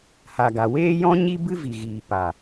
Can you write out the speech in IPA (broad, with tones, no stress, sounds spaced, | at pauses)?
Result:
h a˨ ɡ a˨ w eː˦ j ɔ̃˦ ɲ i˦ b ɨ˦ v i˨ ɣ iː˨ p a˨